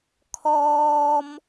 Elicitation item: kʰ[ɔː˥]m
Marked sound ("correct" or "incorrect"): correct